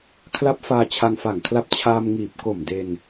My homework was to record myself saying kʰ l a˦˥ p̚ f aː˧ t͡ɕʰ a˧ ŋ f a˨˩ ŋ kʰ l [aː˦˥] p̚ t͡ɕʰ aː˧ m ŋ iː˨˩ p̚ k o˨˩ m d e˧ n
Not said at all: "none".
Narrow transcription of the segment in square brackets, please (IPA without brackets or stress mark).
a˦˥